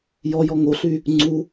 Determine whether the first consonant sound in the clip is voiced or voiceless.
voiced